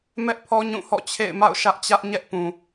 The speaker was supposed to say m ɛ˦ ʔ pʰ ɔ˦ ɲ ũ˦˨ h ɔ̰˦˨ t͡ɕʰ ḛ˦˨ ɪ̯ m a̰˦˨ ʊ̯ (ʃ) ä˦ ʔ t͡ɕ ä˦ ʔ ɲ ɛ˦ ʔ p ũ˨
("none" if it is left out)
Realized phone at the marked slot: ʃ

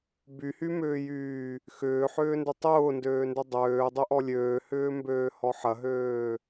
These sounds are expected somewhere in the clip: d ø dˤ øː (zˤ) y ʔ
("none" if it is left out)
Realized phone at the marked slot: dˤ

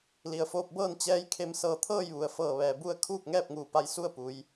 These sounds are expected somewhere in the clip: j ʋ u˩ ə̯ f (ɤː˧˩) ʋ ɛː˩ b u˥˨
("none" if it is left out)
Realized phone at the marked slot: ɤː˧˩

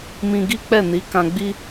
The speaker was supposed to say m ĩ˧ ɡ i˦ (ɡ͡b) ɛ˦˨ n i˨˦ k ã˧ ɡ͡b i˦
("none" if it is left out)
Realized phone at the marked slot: k͡p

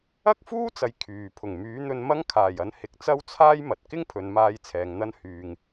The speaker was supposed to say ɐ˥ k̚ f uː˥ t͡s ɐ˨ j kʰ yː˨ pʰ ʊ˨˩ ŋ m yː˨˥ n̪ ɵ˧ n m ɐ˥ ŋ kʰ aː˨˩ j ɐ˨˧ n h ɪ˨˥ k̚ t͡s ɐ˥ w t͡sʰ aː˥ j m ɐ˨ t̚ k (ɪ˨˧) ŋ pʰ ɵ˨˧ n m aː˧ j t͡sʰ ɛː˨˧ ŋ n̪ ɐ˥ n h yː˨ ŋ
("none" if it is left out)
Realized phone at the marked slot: ɪ˥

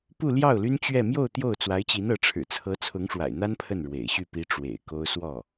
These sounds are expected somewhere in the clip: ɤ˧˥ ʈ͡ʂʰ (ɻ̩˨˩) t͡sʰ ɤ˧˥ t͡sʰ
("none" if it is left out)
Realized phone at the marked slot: ɻ̩˨˩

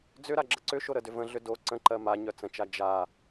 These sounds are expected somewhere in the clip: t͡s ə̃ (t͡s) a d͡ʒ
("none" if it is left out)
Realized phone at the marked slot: t͡ʃ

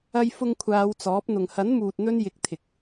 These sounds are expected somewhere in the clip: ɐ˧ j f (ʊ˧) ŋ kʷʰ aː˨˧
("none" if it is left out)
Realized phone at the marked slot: ʊ˧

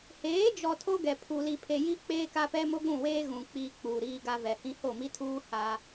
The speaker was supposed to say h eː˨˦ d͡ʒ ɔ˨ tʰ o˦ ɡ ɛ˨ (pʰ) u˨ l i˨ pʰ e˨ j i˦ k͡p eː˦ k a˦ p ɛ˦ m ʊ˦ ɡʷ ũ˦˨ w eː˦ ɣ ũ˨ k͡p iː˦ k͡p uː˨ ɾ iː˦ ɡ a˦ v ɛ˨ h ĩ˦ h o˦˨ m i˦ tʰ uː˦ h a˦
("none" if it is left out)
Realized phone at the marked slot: pʰ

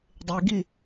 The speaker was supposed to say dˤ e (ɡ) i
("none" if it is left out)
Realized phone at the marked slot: ɡ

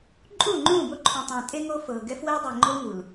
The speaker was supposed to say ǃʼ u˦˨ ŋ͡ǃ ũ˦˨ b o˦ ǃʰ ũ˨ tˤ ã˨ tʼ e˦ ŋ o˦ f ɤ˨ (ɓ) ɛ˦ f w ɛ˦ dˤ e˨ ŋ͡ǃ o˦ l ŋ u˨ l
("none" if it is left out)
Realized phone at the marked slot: ɡ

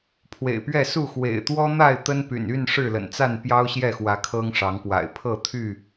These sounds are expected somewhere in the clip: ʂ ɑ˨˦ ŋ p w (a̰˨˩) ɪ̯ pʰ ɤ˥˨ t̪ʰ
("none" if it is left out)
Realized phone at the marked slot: a̰˨˩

